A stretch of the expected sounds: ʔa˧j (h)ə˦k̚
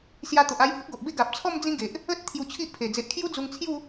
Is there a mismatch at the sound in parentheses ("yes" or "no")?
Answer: no